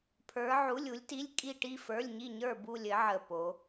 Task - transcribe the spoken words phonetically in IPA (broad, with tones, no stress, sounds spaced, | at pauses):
pʰ ə˞˧˥ ʕ u˧˥˧ lʲ u˧˥ lʲ t i˧˥˧ lʲ kʼ i˥˧ ʈ i˥˧ f ə˞˧˥˧ lʲ ɲ i˥˧ ɲ ə˞˥˧ b u˥˧ lʲ ɘ˧˥ ʕ ə˥˧ p o˧˥